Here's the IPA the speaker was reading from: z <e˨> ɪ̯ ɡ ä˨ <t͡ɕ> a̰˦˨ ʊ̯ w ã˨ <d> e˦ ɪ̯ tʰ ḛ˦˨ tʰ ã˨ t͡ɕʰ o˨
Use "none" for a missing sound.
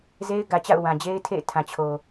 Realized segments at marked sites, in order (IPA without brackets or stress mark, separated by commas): e˦, t͡ɕ, d͡ʑ